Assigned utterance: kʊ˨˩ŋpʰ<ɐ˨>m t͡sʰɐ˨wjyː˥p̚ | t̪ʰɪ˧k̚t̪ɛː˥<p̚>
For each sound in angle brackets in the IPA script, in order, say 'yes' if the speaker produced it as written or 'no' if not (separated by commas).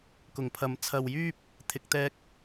yes, no